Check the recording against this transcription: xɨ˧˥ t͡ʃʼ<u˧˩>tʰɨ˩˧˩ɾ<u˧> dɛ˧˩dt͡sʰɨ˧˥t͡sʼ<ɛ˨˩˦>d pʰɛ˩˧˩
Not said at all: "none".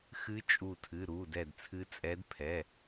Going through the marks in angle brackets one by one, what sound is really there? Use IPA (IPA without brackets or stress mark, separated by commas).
u˧˩, u˩˧˩, ɛ˧˥